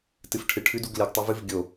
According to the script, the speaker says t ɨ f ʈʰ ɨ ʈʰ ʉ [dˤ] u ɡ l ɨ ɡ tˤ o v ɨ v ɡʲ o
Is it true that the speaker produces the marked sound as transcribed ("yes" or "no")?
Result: no